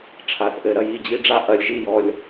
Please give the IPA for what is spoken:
ʈ͡ʂʰa˨˩˦θ ʔɘ˨˩˦ɾɐ˨ji˥˨d͡ʑi˦ ɖ͡ʐa˦ʔɐ˨˦lʲʒi˥˨jɔ˦lʲ

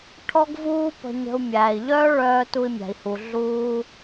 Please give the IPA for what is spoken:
ʈʰɔ˥ɡvuː˥ pə̤˧ɲə̤˧u̯ mʲæː˩i̯ʎœː˥ɭœː˧ tu˧i̯mʲæ̤˩i̯hu˩ ɮuː˧

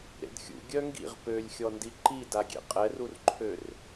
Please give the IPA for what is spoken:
ɾḛdxʲṵ ɡʲœŋɡḭʁ pølʲxʲɔ ndiǃidaɡʲḛ qʼɛrurǃʰør

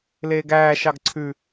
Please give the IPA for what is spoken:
leːɡæː ʃɑɡǀʰʉ

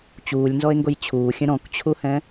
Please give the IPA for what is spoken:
t͡ɕuːlʲnzɔe̯ŋɡoj t͡ɕʰuːxʲə̃ ɾɔ̃kt͡ɕʰuhɛ̃

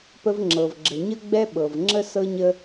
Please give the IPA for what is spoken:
pə˦vŋ͡ǁɤ˨vɡ͡ǁə˨ ɲə˦ ɡ͡bɛ˦ɓɤ˨v ŋ͡ǁə˦sɤ˦ɲə˦

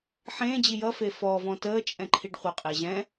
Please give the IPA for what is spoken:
ħẽːd͡ʑi jʌ fefɔvɔ̃ təː t͡ʃʼɛ̃ǃʰiɖχʷəqʼi ʑɛ̃

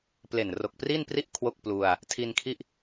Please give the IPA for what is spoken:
ple˨˩nro˨˩k̚pri˥˩npri˥˩ʔ kʰwo˥˩k̚plu˧a̯ | tʰi˧nkʰi˥˩ʔ

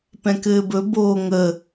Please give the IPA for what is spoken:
pɛ̃kɘːbɵ boːŋə

